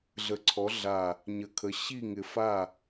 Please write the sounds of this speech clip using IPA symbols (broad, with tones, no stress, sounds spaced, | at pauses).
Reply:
ɮ ə˧˩ ǀʰ ɔ˨˥ ɮ a˧˩ | ɲ ə˧˩ kʰ ə˨˥ ɕ i˥˩ ŋ ɪ˧˩ f a˥˩